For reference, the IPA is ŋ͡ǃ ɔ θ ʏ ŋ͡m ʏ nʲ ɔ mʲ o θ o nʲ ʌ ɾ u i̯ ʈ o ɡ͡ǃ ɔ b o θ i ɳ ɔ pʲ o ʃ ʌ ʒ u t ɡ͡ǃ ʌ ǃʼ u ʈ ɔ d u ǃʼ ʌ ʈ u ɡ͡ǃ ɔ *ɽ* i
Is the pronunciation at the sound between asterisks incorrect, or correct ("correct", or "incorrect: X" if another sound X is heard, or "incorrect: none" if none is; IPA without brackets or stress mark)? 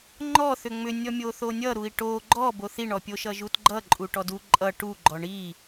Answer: incorrect: ɳ